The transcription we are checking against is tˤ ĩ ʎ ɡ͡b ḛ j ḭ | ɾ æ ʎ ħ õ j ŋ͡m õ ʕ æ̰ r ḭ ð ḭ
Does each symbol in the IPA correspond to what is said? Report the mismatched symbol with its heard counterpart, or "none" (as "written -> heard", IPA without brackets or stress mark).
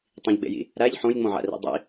ð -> dˤ